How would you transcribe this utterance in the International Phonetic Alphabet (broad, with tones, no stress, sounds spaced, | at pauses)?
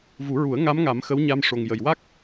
v u˨˩˦ ɹ u˨˩˦ ə̯ ŋ a˧˥ m ŋ a˨˩˦ m x ə˧˥ w ɲ a˧ m ʂ o˨˩ ŋ j ə˨˩ j w a˦˥ k̚